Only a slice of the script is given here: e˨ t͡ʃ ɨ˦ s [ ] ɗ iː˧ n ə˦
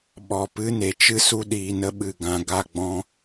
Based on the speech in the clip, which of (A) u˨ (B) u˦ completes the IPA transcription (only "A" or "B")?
B